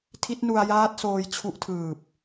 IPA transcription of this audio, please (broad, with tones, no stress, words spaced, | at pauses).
tʰi˦˥t̚nu˧a̯jaː˦˥t̚soː˧j t͡ɕʰu˦˥ʔtʰɯː˨˩p̚